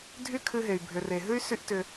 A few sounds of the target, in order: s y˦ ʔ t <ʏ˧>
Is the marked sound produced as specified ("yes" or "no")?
yes